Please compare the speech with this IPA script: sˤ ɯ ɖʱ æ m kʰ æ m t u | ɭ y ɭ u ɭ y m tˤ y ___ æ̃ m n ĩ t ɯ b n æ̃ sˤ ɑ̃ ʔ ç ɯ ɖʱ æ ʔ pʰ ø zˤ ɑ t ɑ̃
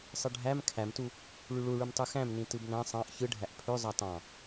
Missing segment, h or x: x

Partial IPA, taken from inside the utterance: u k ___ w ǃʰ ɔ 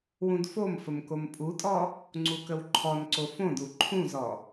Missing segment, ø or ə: ə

